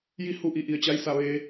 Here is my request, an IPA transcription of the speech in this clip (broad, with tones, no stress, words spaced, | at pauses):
ji˧˥ hu˧ʔi˩˧ʔi˩ə̯t͡ɕa˧j sa˧˩ʋeː˩˧